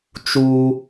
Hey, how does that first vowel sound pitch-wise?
high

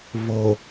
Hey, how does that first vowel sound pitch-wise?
low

